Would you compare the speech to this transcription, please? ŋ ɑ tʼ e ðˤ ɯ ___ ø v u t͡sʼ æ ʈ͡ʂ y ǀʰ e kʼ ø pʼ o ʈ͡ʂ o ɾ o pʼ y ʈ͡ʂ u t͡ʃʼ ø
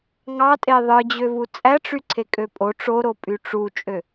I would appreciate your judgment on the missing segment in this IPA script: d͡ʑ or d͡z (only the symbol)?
d͡ʑ